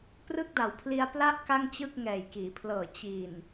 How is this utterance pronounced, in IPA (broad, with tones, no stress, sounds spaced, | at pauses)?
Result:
p r ɯ˥˩ k̚ d a˨˩ w pʰ l i˧ a̯ p l a˥˩ ʔ k a˥˩ ŋ t͡ɕ ɯ˥˩ k̚ ŋ ɛː˨˩ j k iː˩˦ pʰ l ɤː˨˩ t͡ɕ i˨˩ n